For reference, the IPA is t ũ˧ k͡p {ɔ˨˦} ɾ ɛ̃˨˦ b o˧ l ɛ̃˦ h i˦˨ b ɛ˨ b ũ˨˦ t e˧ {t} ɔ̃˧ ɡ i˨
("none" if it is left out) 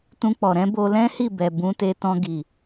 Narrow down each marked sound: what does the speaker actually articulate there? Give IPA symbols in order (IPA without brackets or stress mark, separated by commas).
ɔ˨, t